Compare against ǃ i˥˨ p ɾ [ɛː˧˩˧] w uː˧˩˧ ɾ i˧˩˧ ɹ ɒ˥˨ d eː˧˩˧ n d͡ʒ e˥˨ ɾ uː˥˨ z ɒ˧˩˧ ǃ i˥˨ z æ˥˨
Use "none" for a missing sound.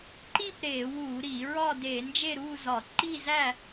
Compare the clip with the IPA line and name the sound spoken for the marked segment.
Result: eː˧˩˧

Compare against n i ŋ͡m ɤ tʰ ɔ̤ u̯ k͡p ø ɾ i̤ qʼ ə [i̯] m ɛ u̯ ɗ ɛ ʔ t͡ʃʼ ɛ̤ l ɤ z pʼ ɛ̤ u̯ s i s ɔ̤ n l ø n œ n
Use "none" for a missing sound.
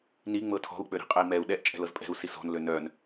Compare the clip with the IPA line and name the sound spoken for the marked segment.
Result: i̯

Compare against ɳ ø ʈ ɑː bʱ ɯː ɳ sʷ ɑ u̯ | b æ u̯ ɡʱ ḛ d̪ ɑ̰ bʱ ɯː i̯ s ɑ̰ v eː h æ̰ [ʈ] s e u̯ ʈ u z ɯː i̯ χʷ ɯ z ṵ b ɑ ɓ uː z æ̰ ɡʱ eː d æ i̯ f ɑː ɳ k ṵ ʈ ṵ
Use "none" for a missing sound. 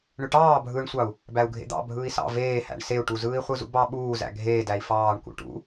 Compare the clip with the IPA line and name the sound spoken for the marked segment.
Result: ɳ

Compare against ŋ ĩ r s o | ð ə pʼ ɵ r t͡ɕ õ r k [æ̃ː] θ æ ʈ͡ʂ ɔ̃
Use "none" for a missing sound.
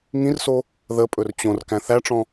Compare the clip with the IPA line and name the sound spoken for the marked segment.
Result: æ̃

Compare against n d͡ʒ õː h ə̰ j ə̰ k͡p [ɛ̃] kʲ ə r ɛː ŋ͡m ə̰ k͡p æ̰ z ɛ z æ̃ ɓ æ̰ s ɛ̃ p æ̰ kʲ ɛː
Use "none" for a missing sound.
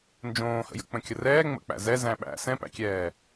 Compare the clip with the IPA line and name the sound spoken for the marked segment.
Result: ə̃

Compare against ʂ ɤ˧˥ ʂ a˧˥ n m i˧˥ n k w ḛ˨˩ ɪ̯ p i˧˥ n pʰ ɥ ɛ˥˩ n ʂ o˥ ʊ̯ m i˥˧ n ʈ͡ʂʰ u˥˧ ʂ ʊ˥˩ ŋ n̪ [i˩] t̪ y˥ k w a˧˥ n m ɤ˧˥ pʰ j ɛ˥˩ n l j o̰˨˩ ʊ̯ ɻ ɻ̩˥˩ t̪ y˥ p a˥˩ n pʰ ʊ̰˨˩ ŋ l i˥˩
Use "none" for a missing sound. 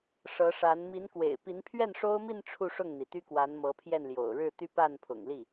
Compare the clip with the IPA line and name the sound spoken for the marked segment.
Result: i˩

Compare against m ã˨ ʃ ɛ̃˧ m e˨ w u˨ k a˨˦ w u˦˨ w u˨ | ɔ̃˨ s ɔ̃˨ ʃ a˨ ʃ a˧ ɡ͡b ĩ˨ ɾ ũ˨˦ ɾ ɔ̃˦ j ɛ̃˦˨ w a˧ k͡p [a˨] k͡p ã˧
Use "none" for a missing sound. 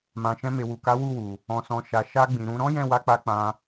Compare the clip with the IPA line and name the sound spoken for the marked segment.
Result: a˧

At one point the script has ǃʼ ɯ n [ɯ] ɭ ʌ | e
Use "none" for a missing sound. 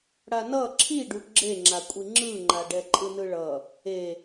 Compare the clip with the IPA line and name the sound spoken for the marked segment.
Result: ɯ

